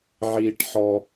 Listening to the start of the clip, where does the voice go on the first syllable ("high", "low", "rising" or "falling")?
high